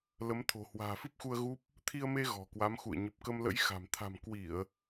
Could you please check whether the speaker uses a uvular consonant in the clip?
no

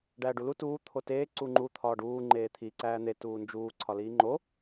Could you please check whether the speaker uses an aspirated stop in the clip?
yes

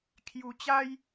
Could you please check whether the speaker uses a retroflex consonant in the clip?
no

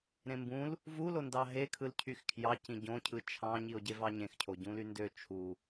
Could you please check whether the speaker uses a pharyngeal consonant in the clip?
no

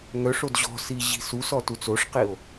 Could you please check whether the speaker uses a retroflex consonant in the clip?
yes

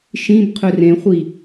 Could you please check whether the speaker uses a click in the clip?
no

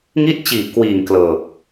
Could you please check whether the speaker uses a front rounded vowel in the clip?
no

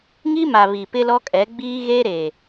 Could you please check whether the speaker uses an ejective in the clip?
yes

